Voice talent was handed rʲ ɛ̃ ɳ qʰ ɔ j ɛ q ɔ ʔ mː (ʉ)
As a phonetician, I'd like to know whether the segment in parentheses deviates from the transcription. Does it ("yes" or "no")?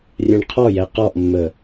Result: yes